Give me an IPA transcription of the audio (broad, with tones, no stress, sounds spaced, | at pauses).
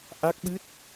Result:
ʔ a˦˥ k̚ ɓ ɨ˦˥ t̚